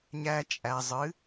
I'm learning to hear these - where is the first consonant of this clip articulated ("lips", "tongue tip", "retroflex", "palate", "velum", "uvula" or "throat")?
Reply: palate